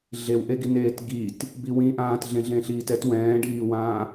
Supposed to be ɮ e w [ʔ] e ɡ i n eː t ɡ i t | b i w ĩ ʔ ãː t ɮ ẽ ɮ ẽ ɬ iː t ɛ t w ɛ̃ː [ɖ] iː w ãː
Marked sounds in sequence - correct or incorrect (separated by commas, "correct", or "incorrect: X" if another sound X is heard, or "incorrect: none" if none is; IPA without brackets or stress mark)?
correct, correct